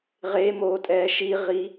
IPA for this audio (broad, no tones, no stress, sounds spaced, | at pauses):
ʁ e m oː tʼ ɛː ʃ i ʁ i